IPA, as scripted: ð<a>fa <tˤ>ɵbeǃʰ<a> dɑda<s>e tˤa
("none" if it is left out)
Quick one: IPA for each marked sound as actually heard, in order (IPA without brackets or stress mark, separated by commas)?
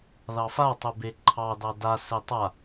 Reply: ɑ, tˤ, ɑ, s